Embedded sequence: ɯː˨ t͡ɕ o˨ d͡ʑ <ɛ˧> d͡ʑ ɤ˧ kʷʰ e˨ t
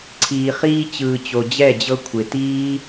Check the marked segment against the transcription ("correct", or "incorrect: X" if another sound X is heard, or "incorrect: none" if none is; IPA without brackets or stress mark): incorrect: ɛ˦˨